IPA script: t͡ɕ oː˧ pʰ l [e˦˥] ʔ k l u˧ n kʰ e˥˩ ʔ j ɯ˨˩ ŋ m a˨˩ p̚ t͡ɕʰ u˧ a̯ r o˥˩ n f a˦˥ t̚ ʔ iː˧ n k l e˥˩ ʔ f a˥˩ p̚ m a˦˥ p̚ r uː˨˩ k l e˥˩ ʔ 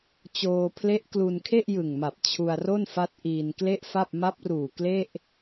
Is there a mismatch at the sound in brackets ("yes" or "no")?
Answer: no